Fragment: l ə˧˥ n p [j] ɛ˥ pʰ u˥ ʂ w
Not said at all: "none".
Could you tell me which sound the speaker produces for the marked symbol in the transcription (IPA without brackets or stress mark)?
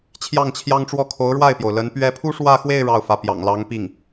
ɥ